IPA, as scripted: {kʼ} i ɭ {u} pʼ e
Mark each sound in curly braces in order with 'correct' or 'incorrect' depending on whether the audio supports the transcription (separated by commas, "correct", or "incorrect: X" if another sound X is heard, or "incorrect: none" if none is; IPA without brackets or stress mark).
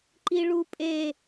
incorrect: ǃ, correct